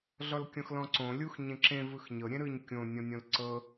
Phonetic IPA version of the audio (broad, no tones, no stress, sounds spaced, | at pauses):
ɮ ɔ l kʲ ɔ̃ x l ɔ̃ ǀ õ lʲ u x ɲ ẽ ǁ ẽ v ɯ x ɲ ɤ ɾʲ ẽ ɾ ɯ ɲ kʲ õ nʲ ɔ̃ nʲ õ l ǀ ɤ